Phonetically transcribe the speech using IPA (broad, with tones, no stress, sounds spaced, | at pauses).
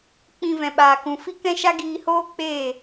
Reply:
k͡p ĩ˧ v ɛ̃˨ ɓ aː˨ k ũ˨ f i˦ k ɛ̃˦ ʃ a˦ ɡ iː˧ h oː˦ k͡p eː˦˨